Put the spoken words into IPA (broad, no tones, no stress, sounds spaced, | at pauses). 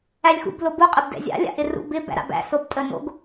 æ lʲ x ṵ b l o b u qʼ ɪ b d ɛ̰ zʲ a̰ lʲ a̰ ʔ ɪ r ṵ b ɪ b æ̰ ɾ a̰ b æ̰ s o b tʼ ə n o̰ ɡ